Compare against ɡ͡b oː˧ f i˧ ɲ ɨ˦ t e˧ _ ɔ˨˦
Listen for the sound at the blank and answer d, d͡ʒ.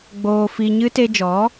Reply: d͡ʒ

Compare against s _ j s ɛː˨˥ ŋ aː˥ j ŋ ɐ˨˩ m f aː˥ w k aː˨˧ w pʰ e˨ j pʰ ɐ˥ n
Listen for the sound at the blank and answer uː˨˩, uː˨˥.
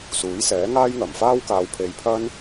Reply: uː˨˥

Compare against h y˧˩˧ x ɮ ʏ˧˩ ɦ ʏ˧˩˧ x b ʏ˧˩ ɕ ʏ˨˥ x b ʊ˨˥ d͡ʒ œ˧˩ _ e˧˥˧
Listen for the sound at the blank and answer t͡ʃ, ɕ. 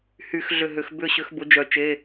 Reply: t͡ʃ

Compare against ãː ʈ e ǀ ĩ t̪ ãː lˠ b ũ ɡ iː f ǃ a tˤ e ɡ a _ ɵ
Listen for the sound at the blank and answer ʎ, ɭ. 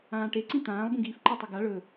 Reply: ɭ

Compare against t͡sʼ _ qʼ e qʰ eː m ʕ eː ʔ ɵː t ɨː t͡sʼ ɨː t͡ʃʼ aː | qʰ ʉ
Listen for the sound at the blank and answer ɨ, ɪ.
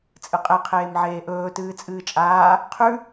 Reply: ɨ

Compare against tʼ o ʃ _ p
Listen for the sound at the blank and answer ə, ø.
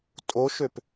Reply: ø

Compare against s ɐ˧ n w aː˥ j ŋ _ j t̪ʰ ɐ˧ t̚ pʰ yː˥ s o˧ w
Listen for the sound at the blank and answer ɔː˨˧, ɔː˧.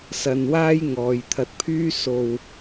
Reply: ɔː˨˧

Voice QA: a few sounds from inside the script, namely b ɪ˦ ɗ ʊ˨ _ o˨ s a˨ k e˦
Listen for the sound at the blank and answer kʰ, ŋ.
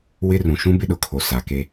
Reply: kʰ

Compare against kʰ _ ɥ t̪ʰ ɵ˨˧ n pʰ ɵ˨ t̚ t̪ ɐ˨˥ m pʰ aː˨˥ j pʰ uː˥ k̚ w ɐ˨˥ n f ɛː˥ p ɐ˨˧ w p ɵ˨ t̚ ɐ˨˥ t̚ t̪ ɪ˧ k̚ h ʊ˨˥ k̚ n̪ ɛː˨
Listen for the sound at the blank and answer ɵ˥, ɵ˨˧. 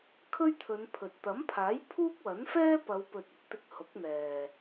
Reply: ɵ˥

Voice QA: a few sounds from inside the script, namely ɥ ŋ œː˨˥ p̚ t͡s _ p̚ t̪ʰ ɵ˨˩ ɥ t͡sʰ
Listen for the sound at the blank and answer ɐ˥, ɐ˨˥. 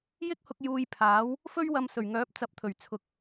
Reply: ɐ˨˥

